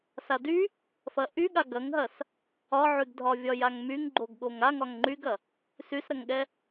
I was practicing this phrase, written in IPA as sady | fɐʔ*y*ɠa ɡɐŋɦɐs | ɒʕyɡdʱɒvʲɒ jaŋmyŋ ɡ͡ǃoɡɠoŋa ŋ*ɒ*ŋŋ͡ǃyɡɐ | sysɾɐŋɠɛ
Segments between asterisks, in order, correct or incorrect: correct, correct

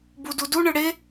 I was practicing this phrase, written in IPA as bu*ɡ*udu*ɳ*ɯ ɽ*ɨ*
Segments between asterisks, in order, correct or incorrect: incorrect: d, correct, incorrect: e

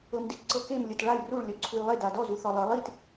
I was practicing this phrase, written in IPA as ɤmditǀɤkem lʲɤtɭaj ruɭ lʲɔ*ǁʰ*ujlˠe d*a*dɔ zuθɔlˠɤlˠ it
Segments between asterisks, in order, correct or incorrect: incorrect: ǀʰ, correct

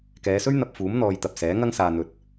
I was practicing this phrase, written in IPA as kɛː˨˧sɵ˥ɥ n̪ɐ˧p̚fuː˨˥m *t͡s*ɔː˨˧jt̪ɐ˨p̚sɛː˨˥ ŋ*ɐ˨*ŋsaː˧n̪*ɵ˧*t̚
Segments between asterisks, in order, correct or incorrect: incorrect: n̪, incorrect: ɐ˥, correct

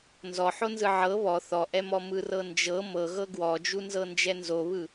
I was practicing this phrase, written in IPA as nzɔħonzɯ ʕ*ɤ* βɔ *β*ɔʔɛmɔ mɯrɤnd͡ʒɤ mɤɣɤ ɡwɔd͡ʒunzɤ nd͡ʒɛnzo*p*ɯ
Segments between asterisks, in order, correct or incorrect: correct, incorrect: θ, incorrect: β

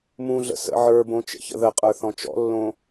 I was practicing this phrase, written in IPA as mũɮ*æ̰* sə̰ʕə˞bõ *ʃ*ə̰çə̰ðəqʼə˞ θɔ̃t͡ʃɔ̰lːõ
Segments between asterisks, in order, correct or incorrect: incorrect: ə̰, incorrect: t͡ʃ

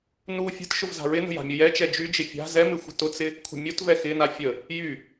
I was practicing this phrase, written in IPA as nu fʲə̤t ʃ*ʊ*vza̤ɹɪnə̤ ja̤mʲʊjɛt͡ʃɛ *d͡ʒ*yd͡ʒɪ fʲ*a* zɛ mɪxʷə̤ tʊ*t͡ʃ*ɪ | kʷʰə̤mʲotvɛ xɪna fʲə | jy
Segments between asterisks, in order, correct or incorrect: correct, correct, incorrect: a̤, incorrect: t͡s

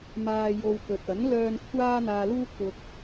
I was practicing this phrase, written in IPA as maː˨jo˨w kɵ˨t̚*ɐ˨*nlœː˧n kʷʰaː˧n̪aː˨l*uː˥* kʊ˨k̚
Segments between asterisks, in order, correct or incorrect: incorrect: ɐ˨˥, incorrect: uː˧

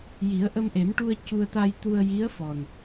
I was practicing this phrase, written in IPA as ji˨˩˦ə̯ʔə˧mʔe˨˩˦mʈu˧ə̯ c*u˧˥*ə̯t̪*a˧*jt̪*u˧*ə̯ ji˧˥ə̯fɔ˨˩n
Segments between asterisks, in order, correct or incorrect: incorrect: u˧, correct, correct

